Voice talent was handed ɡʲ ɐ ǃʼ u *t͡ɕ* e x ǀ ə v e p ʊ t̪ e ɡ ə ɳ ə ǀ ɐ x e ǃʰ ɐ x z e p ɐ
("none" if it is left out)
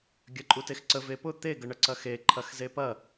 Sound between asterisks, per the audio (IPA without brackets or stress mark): t